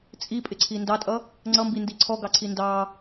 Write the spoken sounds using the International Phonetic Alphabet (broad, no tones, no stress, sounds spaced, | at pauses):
t͡sʼ i pʼ ɪ ǀʰ i n d ɑ tʼ ʌ | ŋ͡ǀ ʌ m b i n d i ǀʰ ɔ ɡ ɑ ǀʰ i n d ɑ